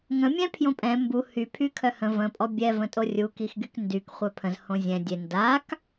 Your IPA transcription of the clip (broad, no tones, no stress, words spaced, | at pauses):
ŋə̃ mʲɛ̃pʰjõpʼɛ̃ mbu hy pʰykʰœhə̃ və̃ pʼɔbʲɛ və̃tʼorʲu kixɡykndyk χʷɛpʰə̃z hõzʲɛ̃ dʲe ndak